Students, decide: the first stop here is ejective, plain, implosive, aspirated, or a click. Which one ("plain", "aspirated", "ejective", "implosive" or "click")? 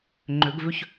click